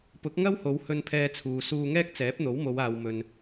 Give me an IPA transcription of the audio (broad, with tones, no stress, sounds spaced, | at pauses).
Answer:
p ʊ˨˥ k̚ ŋ ɐ˥ w h o˨˧ w h ɵ˧ n pʰ ɛː˧ t͡sʰ uː˨ s uː˧ ŋ ɛː˥ k̚ t͡s ɛː˨˥ p̚ n̪ o˨˥ w m o˨˧ w aː˨ w m ɵ˨ n